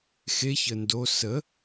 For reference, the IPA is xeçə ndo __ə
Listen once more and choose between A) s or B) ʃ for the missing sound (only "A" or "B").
A